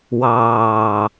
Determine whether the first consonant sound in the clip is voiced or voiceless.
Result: voiced